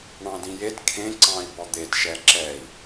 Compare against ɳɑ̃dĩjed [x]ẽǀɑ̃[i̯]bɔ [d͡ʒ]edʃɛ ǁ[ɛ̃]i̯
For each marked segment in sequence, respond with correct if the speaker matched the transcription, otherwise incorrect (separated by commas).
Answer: incorrect, correct, incorrect, incorrect